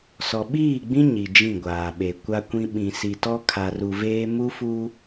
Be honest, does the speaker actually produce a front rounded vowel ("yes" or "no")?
no